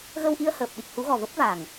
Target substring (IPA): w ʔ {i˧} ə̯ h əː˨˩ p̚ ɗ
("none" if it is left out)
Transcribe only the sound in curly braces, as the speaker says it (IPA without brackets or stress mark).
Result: i˧